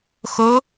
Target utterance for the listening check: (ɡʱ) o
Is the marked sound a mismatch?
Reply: yes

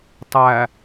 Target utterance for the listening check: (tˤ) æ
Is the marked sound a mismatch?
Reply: no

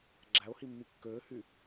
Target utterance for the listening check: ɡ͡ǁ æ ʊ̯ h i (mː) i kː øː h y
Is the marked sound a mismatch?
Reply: no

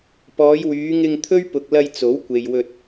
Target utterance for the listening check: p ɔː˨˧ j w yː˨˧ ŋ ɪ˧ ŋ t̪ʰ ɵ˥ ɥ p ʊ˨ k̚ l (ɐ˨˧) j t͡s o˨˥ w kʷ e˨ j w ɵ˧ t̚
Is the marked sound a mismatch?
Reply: yes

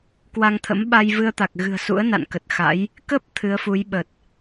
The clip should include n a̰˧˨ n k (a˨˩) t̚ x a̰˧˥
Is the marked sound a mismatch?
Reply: yes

